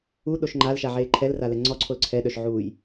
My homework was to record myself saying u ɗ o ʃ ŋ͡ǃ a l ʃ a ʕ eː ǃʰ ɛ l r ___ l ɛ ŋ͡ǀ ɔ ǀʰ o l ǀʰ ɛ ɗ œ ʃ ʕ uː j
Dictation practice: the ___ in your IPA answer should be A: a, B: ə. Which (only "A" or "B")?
A